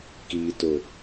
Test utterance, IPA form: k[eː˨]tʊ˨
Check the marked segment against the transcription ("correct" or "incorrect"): incorrect